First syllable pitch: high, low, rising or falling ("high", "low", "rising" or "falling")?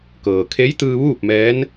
low